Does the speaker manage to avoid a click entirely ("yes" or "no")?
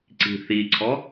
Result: no